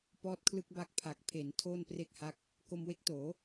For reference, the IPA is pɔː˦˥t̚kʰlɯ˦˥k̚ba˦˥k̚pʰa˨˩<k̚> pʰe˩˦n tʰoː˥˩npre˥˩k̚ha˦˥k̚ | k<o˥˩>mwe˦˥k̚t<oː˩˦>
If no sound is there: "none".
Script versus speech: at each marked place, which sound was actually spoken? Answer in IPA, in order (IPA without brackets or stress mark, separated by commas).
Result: k̚, o˧, oː˩˦